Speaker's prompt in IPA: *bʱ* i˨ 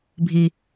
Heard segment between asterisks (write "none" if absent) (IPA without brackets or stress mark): bʱ